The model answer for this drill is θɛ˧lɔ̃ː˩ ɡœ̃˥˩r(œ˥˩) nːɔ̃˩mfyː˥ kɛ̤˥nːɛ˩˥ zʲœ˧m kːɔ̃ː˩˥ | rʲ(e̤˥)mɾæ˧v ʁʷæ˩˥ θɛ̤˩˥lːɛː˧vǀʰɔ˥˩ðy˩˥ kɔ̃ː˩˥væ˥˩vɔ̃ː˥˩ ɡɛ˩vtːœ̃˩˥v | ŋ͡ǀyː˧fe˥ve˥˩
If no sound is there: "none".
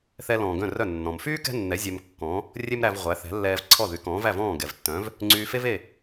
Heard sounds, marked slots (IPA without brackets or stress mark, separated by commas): œ˥˩, e˥